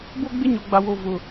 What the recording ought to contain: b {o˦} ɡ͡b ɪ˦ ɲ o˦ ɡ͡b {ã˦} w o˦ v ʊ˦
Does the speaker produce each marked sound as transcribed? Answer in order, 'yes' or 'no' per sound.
yes, no

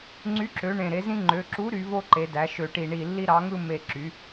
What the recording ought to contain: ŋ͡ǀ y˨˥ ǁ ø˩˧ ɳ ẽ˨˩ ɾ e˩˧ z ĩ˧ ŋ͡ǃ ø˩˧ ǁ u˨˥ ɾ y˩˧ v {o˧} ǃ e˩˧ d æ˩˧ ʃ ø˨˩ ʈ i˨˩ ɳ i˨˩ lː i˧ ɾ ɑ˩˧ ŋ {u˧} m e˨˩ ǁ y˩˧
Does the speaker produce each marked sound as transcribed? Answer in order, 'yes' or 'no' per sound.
yes, no

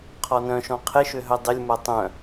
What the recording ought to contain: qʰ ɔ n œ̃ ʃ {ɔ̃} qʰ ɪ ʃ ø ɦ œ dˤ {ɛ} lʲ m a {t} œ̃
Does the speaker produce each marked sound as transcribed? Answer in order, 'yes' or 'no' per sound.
yes, no, no

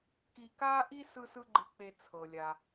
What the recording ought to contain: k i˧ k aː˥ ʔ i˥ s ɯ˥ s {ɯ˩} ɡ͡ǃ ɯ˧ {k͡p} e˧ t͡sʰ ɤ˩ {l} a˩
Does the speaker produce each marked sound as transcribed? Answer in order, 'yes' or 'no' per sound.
no, yes, no

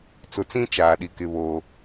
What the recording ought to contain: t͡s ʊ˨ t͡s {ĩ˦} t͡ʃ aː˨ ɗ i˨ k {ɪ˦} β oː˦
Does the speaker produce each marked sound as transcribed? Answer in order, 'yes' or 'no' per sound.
yes, yes

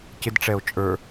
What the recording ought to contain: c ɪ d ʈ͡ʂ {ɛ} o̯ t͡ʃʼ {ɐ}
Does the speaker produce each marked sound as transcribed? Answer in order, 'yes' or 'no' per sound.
yes, no

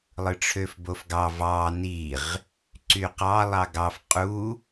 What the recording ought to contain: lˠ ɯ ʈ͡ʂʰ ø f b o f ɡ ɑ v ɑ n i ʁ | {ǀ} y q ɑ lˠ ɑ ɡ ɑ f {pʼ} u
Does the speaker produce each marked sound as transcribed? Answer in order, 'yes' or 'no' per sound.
yes, no

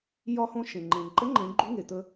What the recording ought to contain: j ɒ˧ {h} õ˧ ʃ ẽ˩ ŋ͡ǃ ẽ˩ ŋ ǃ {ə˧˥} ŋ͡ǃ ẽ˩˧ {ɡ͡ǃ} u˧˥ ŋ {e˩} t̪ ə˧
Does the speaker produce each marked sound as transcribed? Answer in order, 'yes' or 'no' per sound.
yes, yes, yes, yes

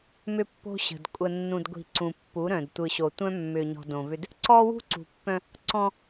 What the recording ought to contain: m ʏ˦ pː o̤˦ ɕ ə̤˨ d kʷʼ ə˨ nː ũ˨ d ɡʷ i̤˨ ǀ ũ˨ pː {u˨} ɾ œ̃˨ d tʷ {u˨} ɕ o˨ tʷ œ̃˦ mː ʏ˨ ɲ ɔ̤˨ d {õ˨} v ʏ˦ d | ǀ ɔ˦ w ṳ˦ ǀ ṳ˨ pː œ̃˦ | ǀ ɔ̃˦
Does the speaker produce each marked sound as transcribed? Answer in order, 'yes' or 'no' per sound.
no, no, yes

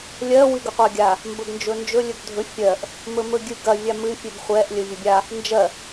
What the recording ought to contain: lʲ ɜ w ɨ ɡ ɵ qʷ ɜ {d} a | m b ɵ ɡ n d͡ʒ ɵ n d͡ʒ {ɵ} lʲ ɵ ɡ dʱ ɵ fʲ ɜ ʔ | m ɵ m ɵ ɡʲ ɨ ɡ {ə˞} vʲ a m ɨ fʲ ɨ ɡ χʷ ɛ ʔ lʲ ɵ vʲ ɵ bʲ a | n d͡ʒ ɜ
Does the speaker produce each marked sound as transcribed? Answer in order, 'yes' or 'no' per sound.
no, yes, no

